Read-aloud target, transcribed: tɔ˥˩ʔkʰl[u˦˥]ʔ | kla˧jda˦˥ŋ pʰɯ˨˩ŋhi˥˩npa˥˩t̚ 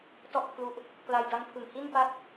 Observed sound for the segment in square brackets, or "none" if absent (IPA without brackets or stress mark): u˦˥